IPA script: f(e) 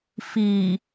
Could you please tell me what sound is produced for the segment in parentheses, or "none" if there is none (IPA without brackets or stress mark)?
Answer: i